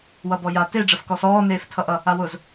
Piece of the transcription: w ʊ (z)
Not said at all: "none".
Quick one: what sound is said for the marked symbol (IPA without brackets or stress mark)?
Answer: z